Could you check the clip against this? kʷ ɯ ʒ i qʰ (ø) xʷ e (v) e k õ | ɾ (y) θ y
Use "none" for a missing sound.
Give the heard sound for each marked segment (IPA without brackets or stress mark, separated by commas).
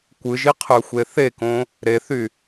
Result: ø, θ, e